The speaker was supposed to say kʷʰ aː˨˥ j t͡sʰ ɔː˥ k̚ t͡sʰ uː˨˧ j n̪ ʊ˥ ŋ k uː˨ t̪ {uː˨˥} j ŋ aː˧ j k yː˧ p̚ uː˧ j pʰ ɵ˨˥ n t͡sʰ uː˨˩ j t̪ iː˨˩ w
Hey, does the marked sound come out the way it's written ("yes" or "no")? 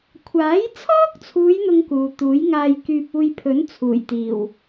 yes